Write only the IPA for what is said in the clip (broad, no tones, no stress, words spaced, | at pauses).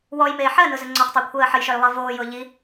wɔjmeː ħɜnʊzʊ ŋ͡ǀɔχtˤəːkʷʰɜː ħəjʃœjlˠɜ voːjʊː ʎi